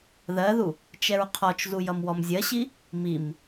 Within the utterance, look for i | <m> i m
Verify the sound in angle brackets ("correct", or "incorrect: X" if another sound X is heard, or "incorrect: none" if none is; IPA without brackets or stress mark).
correct